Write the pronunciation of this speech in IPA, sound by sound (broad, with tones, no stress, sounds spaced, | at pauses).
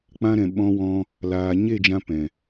k͡p ã˧ ɾ ɛ̃˨ ɓ ɔ̃˧ w ɔ̃˧ | l aː˨ ɲ e˦˨ d͡ʒ ã˧ p ɛ̃˨